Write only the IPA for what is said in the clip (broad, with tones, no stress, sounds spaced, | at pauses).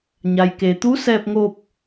ɲ a˩ j k e˩ t̪ u˧˥ s ɛː˧ p̚ ŋ o˧ p̚